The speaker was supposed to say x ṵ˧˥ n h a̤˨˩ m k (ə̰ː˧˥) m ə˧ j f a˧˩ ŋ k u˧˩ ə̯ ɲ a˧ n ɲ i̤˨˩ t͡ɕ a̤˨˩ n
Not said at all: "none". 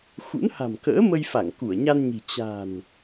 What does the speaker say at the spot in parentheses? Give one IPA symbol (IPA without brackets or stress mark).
ə̰ː˧˥